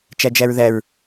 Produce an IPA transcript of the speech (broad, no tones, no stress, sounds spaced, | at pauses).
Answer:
t͡ʃ æ d͡ʒ æ ɹ ð æ ɹ